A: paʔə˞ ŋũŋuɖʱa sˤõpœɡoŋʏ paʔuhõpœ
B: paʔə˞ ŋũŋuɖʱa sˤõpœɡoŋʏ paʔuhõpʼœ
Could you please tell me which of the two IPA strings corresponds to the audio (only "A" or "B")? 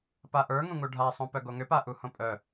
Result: B